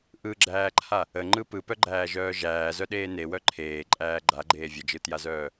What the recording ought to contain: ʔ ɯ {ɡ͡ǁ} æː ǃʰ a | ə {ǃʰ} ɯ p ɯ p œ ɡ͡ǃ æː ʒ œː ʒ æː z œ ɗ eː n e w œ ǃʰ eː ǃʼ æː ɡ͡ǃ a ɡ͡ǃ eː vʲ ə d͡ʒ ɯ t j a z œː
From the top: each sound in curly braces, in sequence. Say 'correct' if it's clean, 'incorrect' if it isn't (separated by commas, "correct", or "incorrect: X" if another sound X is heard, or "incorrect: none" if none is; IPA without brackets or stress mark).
correct, incorrect: ŋ͡ǃ